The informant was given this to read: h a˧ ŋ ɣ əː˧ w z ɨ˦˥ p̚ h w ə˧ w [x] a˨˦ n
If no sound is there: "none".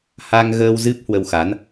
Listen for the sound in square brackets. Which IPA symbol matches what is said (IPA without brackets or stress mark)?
x